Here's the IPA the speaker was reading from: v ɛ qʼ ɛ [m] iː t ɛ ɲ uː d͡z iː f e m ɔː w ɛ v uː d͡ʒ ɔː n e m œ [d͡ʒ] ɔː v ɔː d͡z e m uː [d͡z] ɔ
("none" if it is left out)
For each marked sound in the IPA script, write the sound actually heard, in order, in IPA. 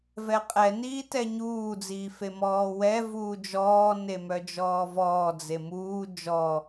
n, d͡ʒ, d͡ʒ

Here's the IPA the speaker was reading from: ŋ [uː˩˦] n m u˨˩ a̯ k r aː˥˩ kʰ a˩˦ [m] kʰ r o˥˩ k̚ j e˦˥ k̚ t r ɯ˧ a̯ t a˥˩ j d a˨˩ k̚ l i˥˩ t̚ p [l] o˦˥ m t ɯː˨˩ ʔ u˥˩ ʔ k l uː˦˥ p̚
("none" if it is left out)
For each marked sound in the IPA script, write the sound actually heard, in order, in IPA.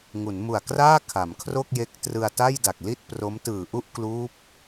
u˩˦, m, r

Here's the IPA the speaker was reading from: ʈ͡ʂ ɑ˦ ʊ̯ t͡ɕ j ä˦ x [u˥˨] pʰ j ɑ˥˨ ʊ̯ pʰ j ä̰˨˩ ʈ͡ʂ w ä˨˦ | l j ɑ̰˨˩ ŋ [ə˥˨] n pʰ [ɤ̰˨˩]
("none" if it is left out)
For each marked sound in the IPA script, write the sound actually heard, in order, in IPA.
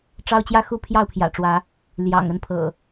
u˥˨, ə˥˨, ɤ̰˨˩

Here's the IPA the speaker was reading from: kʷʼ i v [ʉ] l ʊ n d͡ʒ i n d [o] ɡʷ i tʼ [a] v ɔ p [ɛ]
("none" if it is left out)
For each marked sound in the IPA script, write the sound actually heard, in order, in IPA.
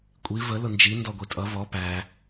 ə, ɔ, ʌ, æ

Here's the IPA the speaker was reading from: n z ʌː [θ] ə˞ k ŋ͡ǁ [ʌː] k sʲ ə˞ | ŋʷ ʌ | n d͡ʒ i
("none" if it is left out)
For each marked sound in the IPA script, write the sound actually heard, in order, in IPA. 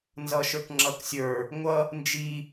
ʃ, ʌ

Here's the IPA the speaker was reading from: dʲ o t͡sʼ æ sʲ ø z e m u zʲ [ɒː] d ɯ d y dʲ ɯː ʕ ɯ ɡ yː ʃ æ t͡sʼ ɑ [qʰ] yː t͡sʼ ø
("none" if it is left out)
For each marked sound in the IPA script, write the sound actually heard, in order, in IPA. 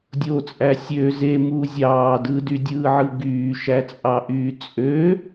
ɑː, ʔ

